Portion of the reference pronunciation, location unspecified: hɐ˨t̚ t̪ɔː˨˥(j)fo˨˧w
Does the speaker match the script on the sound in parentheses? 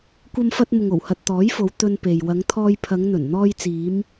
yes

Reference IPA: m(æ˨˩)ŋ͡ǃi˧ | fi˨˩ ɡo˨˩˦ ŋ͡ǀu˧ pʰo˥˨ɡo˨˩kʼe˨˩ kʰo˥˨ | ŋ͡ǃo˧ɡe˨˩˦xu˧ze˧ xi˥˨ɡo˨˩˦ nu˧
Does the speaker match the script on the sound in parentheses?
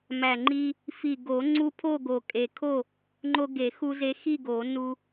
yes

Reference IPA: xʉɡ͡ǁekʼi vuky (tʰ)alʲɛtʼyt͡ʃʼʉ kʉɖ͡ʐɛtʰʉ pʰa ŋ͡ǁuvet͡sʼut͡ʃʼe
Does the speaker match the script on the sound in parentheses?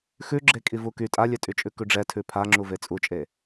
no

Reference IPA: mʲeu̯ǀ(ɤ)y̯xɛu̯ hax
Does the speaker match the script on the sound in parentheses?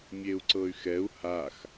yes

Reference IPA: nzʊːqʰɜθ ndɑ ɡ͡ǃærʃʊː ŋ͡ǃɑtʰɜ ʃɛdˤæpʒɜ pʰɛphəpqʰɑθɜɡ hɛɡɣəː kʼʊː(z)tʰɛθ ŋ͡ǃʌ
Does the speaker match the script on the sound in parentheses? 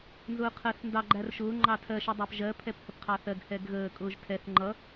no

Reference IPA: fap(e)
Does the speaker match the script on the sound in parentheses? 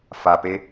yes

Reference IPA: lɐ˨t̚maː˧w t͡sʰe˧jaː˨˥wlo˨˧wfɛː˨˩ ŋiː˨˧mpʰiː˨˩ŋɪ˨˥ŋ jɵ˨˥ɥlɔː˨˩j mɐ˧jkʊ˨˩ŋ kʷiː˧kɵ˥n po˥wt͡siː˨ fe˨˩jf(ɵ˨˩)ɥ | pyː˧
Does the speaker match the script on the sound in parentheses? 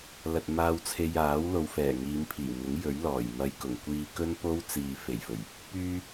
yes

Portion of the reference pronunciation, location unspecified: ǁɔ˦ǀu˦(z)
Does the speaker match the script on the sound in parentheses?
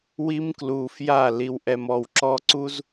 yes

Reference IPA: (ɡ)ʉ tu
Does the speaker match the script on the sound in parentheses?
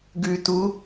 yes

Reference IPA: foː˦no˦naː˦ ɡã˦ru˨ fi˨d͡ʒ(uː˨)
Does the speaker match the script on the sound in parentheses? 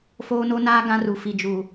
yes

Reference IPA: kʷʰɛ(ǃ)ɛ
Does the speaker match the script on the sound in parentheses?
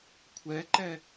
yes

